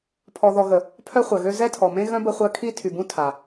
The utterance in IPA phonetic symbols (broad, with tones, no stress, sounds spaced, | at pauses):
pʰ ɔ˨ ð ɔ˨ ɣ ə˨ | pʰ œ˦ χʷ œ˨ ɣ ø˦ z ɛ˦ tʰ ɔ˨ m ẽ˦ ɣ œ̃˦ b ə˦ χʷ œ˦ kʰ i˦ tʰ y˨ b ũ˦ tʰ a˨